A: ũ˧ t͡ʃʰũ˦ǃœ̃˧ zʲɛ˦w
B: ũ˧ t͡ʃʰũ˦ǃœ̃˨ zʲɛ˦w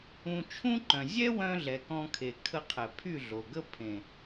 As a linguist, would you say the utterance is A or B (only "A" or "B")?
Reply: B